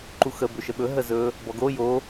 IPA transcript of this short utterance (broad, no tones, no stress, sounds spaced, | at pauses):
ǃ u x ə b ɵ ʃ ə ɓ ɵ ɦ ə z ɵ | b ɔ ɡ o j o